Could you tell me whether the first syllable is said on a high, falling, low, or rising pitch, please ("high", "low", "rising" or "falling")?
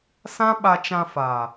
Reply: high